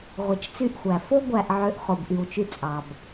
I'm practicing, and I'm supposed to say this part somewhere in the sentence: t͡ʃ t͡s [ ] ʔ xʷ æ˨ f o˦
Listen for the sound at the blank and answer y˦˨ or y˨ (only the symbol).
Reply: y˦˨